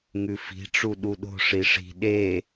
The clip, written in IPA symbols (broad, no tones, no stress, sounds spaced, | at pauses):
ŋ ʉ f i̤ ʈ͡ʂ u ɗ u ɗ o̤ ʂ i ʂ i̤ ɗ e